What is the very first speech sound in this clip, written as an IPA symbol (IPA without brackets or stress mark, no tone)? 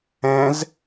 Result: ɛ̃